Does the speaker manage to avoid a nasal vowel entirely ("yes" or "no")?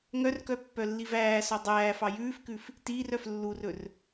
yes